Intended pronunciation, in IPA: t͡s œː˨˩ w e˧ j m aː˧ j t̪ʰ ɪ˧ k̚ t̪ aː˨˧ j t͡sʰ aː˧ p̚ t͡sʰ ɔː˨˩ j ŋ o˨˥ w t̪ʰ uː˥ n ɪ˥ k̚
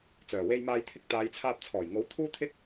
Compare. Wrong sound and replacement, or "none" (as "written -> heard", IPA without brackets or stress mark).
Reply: n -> t̪ʰ